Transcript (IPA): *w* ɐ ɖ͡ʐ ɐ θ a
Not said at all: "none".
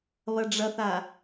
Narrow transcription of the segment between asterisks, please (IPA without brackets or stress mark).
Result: β